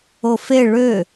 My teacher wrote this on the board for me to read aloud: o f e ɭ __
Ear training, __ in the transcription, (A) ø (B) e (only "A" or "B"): A